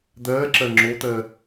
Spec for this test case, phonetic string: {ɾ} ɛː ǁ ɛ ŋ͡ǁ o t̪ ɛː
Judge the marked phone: incorrect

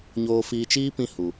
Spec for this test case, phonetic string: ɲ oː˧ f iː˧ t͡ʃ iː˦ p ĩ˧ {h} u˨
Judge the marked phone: correct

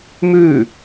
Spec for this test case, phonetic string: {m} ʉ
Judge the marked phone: correct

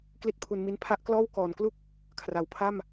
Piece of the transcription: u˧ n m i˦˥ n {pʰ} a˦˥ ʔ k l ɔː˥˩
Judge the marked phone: correct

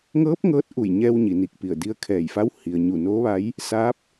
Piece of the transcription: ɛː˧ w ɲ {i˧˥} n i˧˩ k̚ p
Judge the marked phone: incorrect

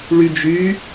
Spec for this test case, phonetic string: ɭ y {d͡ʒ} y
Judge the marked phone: correct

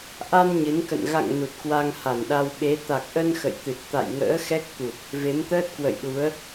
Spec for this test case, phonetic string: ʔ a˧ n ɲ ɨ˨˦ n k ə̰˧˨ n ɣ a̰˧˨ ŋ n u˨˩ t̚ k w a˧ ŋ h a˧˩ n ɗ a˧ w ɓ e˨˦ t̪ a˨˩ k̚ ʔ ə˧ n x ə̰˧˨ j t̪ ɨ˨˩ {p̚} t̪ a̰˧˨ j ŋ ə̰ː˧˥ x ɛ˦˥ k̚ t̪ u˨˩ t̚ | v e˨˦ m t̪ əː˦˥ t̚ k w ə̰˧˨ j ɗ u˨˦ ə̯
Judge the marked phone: incorrect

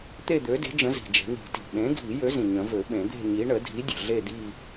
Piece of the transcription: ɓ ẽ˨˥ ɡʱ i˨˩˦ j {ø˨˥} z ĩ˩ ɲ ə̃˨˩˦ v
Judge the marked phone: correct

